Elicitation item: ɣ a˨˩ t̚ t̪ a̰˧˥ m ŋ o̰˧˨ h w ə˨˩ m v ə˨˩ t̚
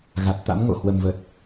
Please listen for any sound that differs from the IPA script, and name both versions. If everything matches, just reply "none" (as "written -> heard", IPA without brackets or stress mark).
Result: none